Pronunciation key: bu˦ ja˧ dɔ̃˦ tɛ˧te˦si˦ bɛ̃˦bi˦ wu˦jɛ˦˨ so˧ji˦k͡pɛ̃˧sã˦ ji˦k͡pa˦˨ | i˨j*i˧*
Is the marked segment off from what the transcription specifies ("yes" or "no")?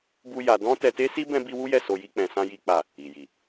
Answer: yes